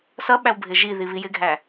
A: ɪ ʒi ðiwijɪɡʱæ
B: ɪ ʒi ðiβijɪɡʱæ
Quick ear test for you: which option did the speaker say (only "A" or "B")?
B